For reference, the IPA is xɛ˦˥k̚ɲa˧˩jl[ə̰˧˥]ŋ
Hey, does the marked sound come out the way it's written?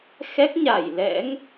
no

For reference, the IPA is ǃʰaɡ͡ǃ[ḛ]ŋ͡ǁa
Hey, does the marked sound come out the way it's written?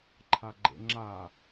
yes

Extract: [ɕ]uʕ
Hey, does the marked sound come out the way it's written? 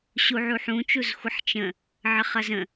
yes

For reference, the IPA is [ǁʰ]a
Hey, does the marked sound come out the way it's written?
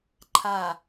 no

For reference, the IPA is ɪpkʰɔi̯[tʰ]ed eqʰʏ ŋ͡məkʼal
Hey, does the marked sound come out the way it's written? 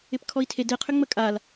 yes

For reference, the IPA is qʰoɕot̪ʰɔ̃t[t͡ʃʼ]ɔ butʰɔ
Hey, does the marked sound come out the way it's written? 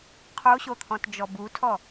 no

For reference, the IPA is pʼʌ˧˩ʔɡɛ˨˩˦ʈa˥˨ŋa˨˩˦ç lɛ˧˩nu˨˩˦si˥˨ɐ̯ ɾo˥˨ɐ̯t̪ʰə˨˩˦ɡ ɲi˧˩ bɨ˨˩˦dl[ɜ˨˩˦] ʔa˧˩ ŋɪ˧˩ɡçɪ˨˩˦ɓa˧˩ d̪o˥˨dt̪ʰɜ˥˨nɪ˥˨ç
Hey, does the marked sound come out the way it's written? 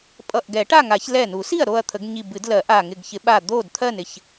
yes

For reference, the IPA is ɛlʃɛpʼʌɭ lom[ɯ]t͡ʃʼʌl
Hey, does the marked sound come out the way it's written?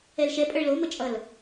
no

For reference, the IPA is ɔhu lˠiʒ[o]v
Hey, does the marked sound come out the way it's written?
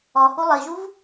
no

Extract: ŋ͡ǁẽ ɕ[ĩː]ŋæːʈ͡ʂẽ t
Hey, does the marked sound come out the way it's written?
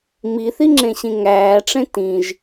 no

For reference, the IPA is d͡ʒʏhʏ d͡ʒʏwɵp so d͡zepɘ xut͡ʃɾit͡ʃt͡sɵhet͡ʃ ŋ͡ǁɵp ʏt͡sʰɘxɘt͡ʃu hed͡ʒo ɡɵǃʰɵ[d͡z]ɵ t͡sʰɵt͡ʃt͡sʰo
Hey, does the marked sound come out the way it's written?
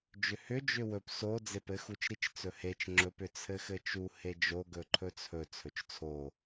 no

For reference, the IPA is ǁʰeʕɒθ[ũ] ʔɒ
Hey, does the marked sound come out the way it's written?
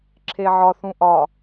yes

